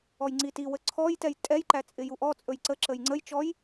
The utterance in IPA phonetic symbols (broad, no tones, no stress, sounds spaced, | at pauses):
ɔ j ŋ͡ǀ i t i w ə ǀʰ ɔ j t ɛ j tʼ ɛ j ǃ æ t͡sʼ ɪ j u ʔ ɔ t͡sʼ ɵ j ǀ ə ǁ ə j ŋ͡ǀ ə j t͡ʃ ɔ j